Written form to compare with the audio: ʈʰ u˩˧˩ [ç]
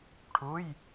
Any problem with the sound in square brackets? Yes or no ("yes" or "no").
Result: yes